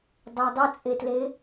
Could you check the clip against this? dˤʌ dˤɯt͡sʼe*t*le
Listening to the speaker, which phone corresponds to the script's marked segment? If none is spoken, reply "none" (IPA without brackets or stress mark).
t